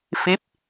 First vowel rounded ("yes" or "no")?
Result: no